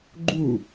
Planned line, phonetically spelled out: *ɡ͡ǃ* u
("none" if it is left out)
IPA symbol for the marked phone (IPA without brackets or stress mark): ɡ͡ǃ